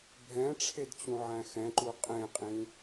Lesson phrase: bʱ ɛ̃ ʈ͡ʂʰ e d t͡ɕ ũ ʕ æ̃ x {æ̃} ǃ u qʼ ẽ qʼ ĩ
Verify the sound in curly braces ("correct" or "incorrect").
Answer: incorrect